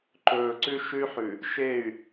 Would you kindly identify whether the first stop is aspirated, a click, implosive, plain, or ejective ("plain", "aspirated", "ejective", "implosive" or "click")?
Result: click